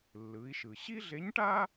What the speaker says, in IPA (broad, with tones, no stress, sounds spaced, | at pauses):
lː ɯ˩˧ i̯ ʃ ɯ˩ ɕ i˥ ɮ e˧˥ ɲ ʈ aː˥